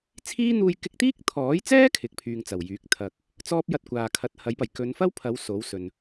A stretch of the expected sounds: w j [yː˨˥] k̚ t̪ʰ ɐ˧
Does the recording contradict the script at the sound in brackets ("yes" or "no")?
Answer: no